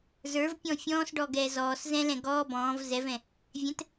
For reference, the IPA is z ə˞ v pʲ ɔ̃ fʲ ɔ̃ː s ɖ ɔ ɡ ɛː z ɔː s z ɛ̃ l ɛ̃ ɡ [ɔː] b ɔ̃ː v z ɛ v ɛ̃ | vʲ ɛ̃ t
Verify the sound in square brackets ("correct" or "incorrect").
correct